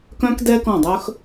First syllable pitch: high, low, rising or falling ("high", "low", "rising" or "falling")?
high